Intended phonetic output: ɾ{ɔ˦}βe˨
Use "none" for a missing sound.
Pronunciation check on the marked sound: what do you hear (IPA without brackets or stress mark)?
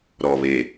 ɔ˨